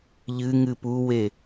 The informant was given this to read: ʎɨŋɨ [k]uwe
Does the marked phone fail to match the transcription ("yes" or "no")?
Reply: yes